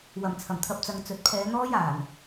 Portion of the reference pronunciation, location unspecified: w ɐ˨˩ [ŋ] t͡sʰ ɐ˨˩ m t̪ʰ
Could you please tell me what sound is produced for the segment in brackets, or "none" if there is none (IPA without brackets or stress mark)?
m